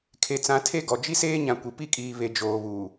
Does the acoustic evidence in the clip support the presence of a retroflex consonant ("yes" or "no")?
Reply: no